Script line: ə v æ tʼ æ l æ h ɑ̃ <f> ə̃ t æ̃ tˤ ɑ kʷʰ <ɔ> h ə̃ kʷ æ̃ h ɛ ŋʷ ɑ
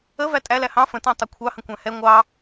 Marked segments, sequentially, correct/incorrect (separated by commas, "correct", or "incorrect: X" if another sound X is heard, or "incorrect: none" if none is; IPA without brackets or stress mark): correct, incorrect: ɑ